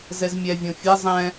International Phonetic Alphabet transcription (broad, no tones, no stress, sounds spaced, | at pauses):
z ɛ z mʲ ɛ vʲ õ fʲ ɛ zˤ ɛ̃